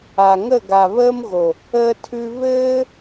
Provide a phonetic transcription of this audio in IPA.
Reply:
a˨ ŋ ə˦˨ ɡ a˨ β əː˧ m ɣ o˨ | əː˧ tʰ ʉ˧ β ɘː˧

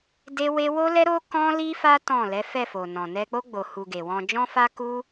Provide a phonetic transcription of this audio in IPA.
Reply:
d e˦ w e˦ w o˦ l ɛ˦ ɾ o˦ k ɔ̃˦ l i˦ f a˦ t ɔ̃˦˨ l ɛ˨˦ f ɛ˦˨ f o˨ n ɔ̃˨ n ɛ˧ k͡p o˦ ɡ͡b o˧ h u˧ ɡ e˨ w ɔ̃˧ d͡ʒ ɔ̃˦ f a˦ k u˦

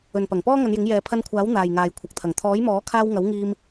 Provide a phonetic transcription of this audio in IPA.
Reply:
ɵ˨ n p ɐ˨˩ ŋ p ɔː˥ ŋ ɐ˨˧ n j ɪ˨˥ ŋ j ɛː˨ pʰ ɐ˧ n kʷʰ aː˨˥ w n̪ aː˨ j ŋ aː˨ j kʷʰ ɐ˨ k̚ t̪ʰ ɐ˨˩ ŋ t̪ʰ ɔː˨˥ j m ɔː˨˥ kʰ aː˧ w ŋ ɐ˨˥ w ŋ iː˧ m

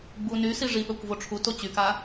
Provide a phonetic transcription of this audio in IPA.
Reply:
ɡ͡b u n y s i ʐ i ɓ œ kʷ v o ʈ͡ʂʰ u t o t͡ɕ y k a

